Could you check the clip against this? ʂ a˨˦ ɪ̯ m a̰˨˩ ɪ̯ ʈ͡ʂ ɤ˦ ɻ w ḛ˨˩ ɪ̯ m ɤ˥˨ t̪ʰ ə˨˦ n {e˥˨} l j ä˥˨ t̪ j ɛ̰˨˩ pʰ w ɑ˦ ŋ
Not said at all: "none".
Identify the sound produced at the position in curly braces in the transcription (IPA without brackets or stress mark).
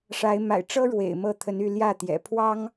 y˥˨